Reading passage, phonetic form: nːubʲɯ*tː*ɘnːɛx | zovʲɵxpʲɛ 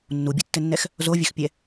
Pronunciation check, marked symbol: correct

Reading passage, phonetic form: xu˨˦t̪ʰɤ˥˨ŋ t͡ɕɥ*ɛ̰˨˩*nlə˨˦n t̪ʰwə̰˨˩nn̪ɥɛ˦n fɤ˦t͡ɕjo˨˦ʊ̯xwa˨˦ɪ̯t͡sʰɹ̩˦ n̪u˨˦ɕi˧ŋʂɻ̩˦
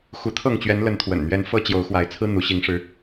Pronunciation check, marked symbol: incorrect: ɛ˨˦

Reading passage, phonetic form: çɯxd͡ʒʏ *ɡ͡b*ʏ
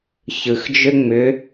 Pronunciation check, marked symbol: incorrect: ŋ͡m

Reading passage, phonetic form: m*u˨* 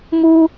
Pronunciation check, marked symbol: incorrect: u˦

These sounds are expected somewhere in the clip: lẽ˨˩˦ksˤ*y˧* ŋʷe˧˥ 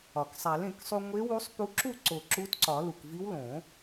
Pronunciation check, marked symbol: incorrect: u˧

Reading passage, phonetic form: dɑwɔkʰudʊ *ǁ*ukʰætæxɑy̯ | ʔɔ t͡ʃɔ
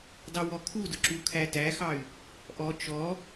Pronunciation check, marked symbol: correct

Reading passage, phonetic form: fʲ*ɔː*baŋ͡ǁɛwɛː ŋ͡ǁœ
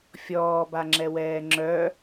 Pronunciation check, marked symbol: correct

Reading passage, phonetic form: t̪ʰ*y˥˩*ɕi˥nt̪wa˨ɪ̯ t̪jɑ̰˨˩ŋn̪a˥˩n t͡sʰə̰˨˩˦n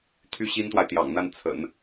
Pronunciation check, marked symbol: incorrect: y˥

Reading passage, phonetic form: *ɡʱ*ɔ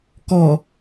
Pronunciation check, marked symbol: incorrect: k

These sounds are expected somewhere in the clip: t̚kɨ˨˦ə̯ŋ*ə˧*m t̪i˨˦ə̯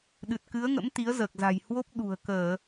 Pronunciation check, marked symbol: incorrect: ə̰˧˥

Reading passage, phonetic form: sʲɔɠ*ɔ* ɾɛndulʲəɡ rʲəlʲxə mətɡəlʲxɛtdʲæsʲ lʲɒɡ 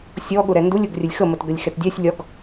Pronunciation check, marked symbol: incorrect: ʊ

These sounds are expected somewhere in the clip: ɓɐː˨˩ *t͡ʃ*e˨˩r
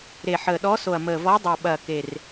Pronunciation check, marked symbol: incorrect: k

